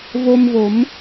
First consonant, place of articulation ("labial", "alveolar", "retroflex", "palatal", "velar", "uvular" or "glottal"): labial